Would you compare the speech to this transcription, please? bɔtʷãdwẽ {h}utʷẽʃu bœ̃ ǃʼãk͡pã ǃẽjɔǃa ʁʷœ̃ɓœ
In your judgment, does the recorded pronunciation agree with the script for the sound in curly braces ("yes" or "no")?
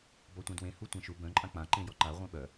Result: yes